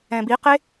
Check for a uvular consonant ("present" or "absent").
present